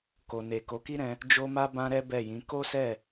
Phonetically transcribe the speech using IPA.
k o˨ n e˨ k o˨˦ k i˦ ɾ ɛ̃˧ | d͡ʒ o˦ m a˦ b ã˦ ɾ ɛ˦ b ɛ˦˨ j ĩ˨˦ k o˦ s ɛ˦˨

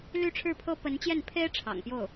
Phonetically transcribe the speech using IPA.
l y˥˧ ʈ͡ʂʰ ɻ̩˥˩ pʰ ɤ˥ p ə˧˥ n t͡ɕ j ɛ˥˩ n pʰ e˥ ɪ̯ ʈ͡ʂʰ ɑ̰˨˩ ŋ p j o˥˩ ʊ̯

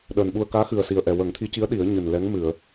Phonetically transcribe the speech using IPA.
ɗ əː˨˩ n ɓ u˧ ə̯ k aː˧˥ x ɨ˨˩ ə̯ s i˨˩ ə̯ ʔ ɛ˨˩ w ə˨˩˦ ŋ t̪ʰ i˧˥ c i˧˥ ə̯ ɗ i˨˩˦ ə̯ ɲ ɨ˨˩ n l ɛ˧˥ ŋ m ɨ˨˩˨ ə̯

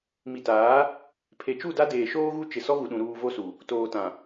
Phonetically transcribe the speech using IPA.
m i˨ t aː˨˦ | pʰ e˨ t͡ʃ u˦˨ d a˦ d eː˨ ʃ oː˦ ɣ u˦ t͡ʃ ɪ˦ s ɔ˦ ɣ u˨ ɗ ũ˨ ɾ uː˨ v o˦ s u˨ | t oː˨ t ã˨

